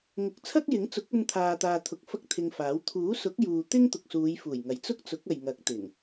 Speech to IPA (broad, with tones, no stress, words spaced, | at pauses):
ŋʊ˨k̚t͡sʰɐ˥k̚jɪ˨˥ŋt͡sʊ˨˥k̚ ɵ˧nt̪ʰaː˨t̪aː˨ t̪ʰʊ˨k̚ fɐ˥k̚t̪ʰɪ˧ŋfaː˨˥w t̪ʰuː˨˥sʊ˨˥k̚juː˨ t̪ɪ˥ŋt̪ʊ˨k̚suː˨˧jfuː˨˩j ŋɐ˨˥jt͡sʊ˥k̚t͡sʊ˨˥k̚ɐ˨j ŋɐ˨˥k̚t̪ɪ˨˩ŋ